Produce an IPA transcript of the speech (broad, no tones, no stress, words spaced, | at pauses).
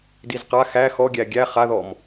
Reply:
dizqa xæ xɔɡʲæ ɡʲæ χaðɔm